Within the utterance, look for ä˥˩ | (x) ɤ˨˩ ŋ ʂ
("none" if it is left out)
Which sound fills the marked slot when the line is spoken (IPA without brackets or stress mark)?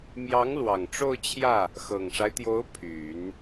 x